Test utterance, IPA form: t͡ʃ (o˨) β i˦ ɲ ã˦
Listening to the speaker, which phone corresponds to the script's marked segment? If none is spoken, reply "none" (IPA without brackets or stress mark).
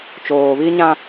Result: oː˨